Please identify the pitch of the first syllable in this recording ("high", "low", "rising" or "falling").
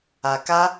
low